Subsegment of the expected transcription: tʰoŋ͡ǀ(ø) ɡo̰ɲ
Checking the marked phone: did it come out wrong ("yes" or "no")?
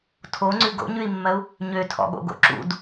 yes